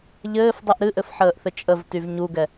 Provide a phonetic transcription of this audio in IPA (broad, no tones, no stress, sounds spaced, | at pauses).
ʎ ɘː f dˤ ɨ ʔ ɾ ɨ ʔ ɘ f ħ əː ʔ θ ɘ t͡ʃʼ ə v t y v ɲ u ɡ ɛ